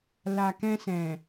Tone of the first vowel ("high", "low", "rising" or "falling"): low